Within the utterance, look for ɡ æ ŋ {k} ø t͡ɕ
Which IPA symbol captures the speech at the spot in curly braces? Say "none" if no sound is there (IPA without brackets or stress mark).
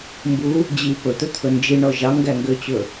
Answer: ɡ